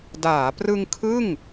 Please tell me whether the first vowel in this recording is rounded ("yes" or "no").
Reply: no